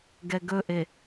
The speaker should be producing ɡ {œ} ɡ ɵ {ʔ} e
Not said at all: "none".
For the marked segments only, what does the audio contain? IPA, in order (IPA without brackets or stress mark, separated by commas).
ɛ, ʔ